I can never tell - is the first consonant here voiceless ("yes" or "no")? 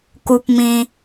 yes